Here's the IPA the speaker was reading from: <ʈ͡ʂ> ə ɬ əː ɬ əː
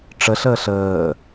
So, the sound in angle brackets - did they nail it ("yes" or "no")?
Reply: yes